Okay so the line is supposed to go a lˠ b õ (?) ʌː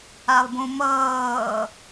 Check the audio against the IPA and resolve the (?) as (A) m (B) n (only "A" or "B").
A